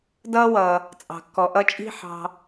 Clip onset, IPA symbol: d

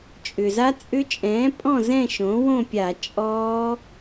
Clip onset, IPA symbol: t͡ʃʼ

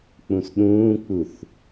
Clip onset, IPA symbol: k͡p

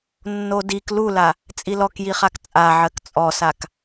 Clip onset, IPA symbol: nː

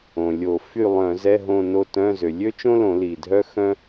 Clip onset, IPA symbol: õ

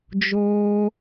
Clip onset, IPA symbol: d͡ʒ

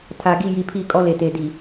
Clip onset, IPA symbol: tʰ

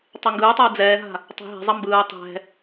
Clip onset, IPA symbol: tˤ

